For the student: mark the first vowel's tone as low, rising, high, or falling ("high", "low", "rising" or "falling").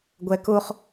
low